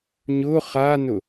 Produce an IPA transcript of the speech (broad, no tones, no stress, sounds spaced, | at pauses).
ɲ ʊ χ a n ʊ